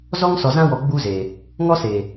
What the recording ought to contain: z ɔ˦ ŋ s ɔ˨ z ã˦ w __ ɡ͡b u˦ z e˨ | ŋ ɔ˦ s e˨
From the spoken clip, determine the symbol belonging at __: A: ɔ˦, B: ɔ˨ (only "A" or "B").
B